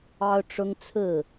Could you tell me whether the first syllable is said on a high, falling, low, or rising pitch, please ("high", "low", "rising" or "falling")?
high